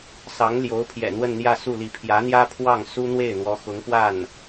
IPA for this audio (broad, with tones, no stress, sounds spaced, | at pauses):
s ɑ˧˥ ŋ l j o˧˥ ʊ̯ pʰ j ɛ̰˨˩ n̪ w ə˥˧ n n̪ j ä˥˧ s u˥˩ l i˧˥ pʰ j ä˧˥ n̪ j ä˥ pʰ w ɑ˥˩ ŋ s u˥ n̪ w e˥˩ ɪ̯ n̪ w ɔ˧˥ x ʊ˧˥ ŋ p w a˥˩ n